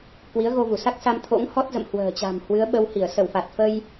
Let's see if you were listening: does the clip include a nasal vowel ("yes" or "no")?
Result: no